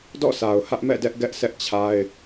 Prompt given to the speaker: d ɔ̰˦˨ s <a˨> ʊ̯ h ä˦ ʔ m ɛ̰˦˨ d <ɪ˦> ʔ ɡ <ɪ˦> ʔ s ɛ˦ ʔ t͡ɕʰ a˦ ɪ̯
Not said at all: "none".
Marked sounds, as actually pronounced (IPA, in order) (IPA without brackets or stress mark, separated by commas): a˨, ɛ˦, ɛ˦